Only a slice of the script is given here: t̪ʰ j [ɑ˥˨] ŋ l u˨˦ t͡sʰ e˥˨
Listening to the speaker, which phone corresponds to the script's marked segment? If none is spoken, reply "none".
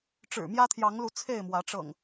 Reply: ɑ˨˦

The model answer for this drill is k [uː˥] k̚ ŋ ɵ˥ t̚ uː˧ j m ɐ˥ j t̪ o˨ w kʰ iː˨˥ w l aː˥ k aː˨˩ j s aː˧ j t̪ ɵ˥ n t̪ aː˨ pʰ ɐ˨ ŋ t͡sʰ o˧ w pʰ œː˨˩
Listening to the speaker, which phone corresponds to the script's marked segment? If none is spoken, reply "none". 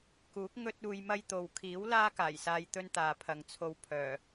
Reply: uː˨˥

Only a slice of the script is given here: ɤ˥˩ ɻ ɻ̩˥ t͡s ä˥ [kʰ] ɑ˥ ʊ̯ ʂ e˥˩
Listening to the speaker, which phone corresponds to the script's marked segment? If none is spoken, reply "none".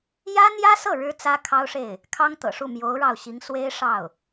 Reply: kʰ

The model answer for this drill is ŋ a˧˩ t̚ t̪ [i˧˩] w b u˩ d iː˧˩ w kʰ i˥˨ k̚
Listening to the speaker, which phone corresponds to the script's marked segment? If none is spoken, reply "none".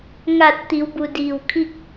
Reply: i˩˧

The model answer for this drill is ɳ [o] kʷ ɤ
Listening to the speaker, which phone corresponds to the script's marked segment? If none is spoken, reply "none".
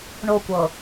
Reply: o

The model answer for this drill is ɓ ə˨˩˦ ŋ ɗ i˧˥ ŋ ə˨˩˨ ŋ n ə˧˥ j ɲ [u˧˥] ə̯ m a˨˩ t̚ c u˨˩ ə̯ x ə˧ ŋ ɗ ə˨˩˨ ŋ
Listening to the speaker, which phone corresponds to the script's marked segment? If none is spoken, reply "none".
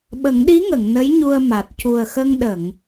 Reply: u˧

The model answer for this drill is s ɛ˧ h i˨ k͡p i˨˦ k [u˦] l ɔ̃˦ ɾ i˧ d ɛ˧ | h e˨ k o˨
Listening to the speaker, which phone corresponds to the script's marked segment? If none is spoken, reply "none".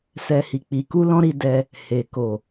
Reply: u˦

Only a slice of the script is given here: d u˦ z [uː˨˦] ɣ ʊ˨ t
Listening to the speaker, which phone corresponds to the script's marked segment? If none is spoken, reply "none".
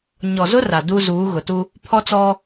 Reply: uː˨˦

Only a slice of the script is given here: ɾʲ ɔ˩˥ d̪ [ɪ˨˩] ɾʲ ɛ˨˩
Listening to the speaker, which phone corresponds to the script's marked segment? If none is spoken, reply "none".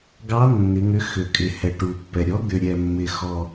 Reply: ʏ˨˩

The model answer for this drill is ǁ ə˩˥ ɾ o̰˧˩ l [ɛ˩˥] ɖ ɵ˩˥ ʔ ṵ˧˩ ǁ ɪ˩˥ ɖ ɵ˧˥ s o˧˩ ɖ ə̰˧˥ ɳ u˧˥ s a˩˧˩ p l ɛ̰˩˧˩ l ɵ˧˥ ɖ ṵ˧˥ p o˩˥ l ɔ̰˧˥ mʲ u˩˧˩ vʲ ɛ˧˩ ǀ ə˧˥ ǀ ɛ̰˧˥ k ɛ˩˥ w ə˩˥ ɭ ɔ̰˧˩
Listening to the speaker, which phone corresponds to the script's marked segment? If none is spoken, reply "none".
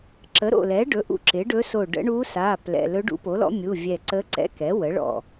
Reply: ɛ˩˥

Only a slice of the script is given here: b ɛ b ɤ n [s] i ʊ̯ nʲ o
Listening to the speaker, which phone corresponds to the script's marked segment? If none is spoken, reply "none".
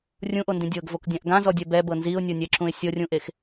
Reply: z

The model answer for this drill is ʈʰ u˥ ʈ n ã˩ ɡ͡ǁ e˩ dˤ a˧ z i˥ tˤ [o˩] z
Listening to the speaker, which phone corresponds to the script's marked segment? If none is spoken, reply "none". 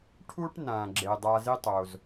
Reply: o˩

